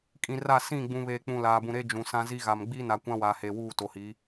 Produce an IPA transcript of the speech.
kʼ ĩ˨ r a˦˨ s ĩ˦˨ ɡ͡b ũ˨ β eː˨ k͡p ũ˨ l aː˨ b ũ˨ ɾ e˦ d͡ʒ ũ˨ s ã˦ z i˦ ɣ a˨ m ɡ͡b iː˦ n a˨ kʷ ã˦ w a˨ h eː˨ w uː˦˨ t o˨ h i˨˦

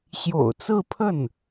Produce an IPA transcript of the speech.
ɕ j o̰˨˩ ʊ̯ t͡s ɹ̩˥˧ pʰ ə˥˩ n

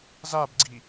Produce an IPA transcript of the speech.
z a b ɡ͡ǀ i

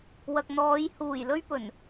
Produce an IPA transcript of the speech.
w ɐ˨ k̚ n̪ ɔː˨˧ j h uː˨˩ j l ɵ˧ ɥ p ɵ˨˩ n

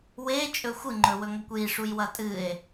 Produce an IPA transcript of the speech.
w e t͡ʃʼ ɵ xʷ ɨ ŋ͡ǃ ɵ w ɵ ŋ ɐ kʷ j i ʂ u j w ɐ tʼ ɨ e̯

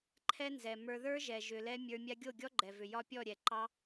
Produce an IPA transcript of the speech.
ǃʰ ɛ˦ n z ɛ˨ m ə˞˧ ð ə˞˦ ʒ ɛ˨ ʒ ʏ˨ l ɛ˧ mʲ ə˞˧ mʲ a˧ ɡʲ o˦˨ ɡʲ ɔ˦ ɡ͡ǃ ɛ˨ v ʏ˨ j ɒ˦ pʲ ɔ˦˨ ɾʲ ɛ˨ ǃ ɑ˦

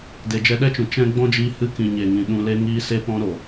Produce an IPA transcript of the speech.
d e˨ d͡ʒ ɛ˧ ɗ ɛ˦ t͡ʃ ũ˨ t͡ʃ ɛ̃˦ ɡ͡b ɔ̃˦ d͡ʒ iː˧ h ɨ˧ k ĩ˨ ɲ e˨ ŋ ĩ˨ ɗ ũ˧ l e˦ ŋ iː˦ s e˧ p ɔ̃˧ ɾ o˨

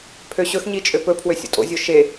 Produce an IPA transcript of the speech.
pʰ ø ɕ ɵ x ɲ i t͡ʃʼ ø p ɵ pʰ w ø sʲ o̰ tʼ o̰ zʲ o ʃ e

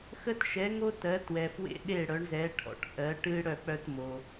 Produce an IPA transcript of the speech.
x ə˦ t ʃ ɛ˨˦ ŋ o˦ t ɜ˨˦ t w ɛ˨ f w ḛ˦ ɗ e˦˨ ɽ œ˨˦ ɳ z ɛ˨˦ ʈʰ ɔ̰˨ ʈ ʔ ɜ˨˦ ʈ ɨ˦ ɽ œ˦˨ k͡p œ˦ t m o˨

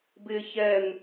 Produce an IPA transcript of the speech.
b ɪː ç ɛ n

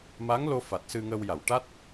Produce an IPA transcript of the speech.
m a˧˥ ŋ l o˧ f a˨˩ t̚ s ɨ˧ ŋ əː˧ w j a˨˩˨ w ʈ a˦˥ t̚

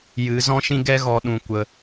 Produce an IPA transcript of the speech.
j ɨ˨˦ z ɔ̃˦ ʃ ĩ˦ ɡ ɛ˦ ɣ ɔ˧ ɗ ũ˨ kʷ ə˧

